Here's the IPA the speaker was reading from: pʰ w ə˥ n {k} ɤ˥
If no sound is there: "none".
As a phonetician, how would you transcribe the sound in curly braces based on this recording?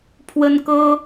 k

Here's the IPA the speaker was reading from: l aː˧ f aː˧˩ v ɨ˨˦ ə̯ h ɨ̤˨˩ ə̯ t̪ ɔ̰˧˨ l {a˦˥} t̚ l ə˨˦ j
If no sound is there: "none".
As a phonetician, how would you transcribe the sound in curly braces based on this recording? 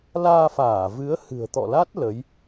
a˦˥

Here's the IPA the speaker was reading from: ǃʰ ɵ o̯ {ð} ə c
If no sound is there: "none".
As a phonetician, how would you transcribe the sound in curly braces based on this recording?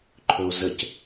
z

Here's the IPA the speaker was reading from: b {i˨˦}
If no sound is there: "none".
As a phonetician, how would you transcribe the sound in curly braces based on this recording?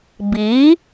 i˨˦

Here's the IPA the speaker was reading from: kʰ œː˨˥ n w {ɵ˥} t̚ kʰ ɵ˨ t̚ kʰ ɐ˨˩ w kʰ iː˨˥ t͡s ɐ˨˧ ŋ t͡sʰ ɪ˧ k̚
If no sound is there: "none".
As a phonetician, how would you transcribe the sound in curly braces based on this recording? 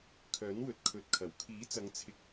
ɵ˨˥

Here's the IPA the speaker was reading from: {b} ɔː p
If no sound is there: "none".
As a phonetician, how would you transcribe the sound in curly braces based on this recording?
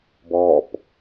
b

